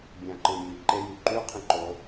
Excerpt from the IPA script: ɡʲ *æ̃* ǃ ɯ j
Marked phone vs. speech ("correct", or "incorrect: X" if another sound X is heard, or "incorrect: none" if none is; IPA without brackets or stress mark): correct